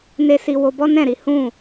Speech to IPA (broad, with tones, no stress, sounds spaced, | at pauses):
n e˦ s i˧ w o˧ b ɔ˦ n ɛ̃˦˨ ɾ i˨˦ h ũ˦˨